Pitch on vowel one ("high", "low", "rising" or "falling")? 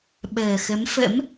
low